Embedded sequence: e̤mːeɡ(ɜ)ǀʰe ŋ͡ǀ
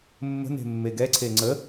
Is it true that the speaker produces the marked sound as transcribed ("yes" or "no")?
no